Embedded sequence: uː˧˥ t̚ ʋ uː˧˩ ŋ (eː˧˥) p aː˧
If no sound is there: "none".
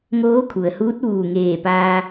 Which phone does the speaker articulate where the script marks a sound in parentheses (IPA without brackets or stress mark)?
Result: eː˧˩